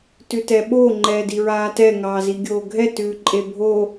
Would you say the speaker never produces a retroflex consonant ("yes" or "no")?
yes